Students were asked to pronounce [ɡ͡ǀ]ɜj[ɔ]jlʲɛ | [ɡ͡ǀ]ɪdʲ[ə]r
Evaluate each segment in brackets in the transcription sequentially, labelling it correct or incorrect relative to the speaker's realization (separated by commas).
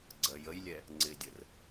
correct, incorrect, incorrect, correct